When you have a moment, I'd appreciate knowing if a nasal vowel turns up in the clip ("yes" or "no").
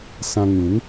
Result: yes